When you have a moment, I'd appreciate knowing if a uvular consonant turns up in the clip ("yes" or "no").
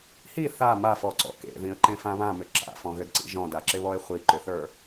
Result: yes